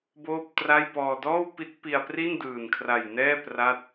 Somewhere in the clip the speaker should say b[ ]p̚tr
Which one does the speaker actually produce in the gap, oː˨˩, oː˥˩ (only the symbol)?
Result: oː˥˩